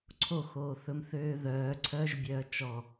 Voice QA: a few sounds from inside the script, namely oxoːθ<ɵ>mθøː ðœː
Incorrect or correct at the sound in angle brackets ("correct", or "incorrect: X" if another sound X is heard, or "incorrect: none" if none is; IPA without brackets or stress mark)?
correct